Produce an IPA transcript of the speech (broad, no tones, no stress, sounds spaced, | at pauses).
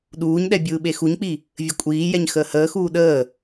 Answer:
ɗ uː ɲ ɗ ɛ bʲ ɯː ɓ e x u ɲ k͡p i | vʲ ə kʷʼ iː j ɛ ɲ x əː h əː x uː ɗ əː